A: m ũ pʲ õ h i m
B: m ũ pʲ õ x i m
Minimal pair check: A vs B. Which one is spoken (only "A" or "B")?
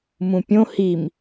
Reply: A